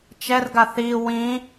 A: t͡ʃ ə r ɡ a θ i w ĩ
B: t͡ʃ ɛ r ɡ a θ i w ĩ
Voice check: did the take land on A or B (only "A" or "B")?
B